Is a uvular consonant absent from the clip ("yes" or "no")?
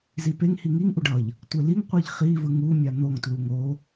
no